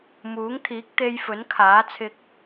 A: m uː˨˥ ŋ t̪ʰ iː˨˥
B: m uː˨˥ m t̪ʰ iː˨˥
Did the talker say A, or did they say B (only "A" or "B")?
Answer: A